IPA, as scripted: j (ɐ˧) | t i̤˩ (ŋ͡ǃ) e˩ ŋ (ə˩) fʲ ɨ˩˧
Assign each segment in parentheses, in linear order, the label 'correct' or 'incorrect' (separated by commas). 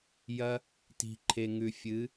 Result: correct, incorrect, incorrect